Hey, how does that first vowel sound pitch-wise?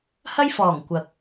high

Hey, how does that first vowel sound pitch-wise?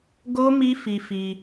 high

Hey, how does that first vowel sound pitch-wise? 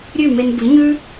falling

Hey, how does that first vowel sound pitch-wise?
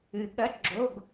low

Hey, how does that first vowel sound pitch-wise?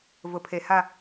low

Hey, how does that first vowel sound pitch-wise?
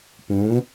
rising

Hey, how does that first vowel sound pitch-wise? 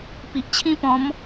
low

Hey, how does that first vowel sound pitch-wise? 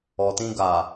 low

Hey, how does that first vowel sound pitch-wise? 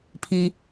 low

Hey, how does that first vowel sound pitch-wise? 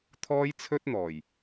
high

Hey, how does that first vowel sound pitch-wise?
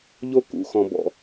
high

